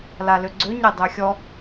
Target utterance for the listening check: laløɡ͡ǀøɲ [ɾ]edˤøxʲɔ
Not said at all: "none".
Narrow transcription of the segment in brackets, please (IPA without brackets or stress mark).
ɾ